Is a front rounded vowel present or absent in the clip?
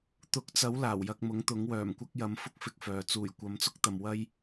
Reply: present